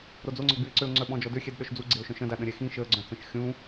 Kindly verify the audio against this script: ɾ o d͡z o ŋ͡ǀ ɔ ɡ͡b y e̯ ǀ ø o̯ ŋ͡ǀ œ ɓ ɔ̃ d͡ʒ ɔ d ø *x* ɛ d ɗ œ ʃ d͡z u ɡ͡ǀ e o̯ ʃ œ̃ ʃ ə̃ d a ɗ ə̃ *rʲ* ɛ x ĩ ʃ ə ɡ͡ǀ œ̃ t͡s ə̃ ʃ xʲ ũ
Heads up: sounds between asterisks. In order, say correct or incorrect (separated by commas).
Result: incorrect, incorrect